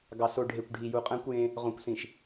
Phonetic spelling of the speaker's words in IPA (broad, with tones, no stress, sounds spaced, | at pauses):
ɡ ɑ˨ s o˨ ɖʱ e˨ kʷ ɖʱ i˨ j u˨ qʼ æ̃˦ kʷ j ẽ˦ | ʁ õ˨ kʷ s ĩ˨ ʃ